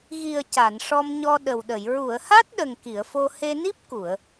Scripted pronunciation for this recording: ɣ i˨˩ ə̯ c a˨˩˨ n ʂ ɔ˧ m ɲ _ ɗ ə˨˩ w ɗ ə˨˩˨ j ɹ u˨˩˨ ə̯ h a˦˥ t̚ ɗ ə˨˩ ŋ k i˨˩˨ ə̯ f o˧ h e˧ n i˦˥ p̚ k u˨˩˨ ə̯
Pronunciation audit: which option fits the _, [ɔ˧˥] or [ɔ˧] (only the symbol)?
ɔ˧